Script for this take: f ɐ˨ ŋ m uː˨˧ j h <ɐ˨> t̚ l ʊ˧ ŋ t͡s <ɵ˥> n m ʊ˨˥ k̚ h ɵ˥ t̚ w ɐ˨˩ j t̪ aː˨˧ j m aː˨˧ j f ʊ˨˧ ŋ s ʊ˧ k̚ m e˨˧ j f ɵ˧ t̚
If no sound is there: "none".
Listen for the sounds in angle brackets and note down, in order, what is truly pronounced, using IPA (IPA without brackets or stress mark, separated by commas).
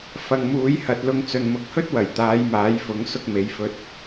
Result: ɐ˨, ɵ˨